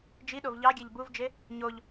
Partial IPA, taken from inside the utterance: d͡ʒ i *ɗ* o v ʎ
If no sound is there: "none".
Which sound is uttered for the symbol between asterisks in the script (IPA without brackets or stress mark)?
ɗ